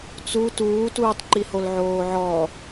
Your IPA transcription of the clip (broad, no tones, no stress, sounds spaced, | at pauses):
t͡s u t uː t uː tˤ ǃ i h o l ʕ oː ʕ ɔ